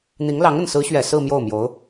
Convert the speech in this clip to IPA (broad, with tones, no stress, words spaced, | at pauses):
n̪i˧˥ŋlɑ˧˥ŋə˥˩n sɹ̩˧˥ɕɥɛ˨˩ sɹ̩˥˧ mjo˥˩ʊ̯mjo˧˥ʊ̯